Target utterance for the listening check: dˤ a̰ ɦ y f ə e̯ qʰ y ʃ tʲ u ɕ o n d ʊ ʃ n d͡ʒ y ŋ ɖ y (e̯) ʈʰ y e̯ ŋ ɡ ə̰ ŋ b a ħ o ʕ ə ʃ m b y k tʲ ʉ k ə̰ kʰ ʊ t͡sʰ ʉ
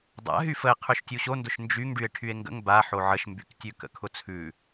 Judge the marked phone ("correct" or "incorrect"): correct